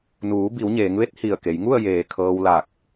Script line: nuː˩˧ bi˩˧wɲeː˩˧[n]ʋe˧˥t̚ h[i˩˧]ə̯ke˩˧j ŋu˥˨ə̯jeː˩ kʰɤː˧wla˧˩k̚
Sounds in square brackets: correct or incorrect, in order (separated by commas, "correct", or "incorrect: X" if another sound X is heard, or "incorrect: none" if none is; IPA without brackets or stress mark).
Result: incorrect: ŋ, incorrect: i˧˩